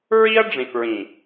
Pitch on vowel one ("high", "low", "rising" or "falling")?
high